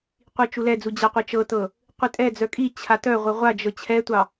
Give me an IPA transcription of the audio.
qʷ i t͡ʃ u l ɛ d͡z u d͡ʑ a qʷ e t͡ʃ ɤ t ɤ | qʷ i tʼ ɛ d͡z œ kʼ i t͡ɕʰ a t œ ʁʷ ɤ ʁʷ a d͡ʒ ɤ t͡ɕʰ ɛ tʷ ɑ

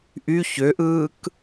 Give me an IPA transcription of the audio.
ʔ y ç ø ʔ ɯː k

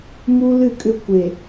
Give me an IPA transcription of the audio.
m u˦ l ɨ˦˨ kʼ ʏ˦˨ kʷ e˨

